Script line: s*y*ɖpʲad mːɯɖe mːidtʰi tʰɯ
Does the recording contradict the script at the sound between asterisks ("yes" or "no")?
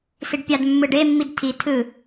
yes